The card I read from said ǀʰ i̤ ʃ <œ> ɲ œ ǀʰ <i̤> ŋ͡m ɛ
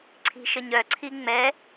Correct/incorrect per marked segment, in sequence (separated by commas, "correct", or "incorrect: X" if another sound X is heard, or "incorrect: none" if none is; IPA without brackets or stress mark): incorrect: ə, incorrect: i